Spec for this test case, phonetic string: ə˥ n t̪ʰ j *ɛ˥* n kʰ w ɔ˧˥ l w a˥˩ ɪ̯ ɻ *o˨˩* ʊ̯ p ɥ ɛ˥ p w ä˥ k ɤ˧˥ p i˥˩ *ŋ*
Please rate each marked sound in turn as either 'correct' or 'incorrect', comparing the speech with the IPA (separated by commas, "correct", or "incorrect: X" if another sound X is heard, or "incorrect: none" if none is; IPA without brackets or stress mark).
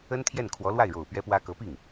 incorrect: ɛ˥˩, correct, correct